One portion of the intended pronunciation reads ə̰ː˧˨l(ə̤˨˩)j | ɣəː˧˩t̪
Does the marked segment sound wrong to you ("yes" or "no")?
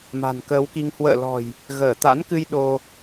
yes